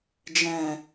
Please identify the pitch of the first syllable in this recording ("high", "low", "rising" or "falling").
low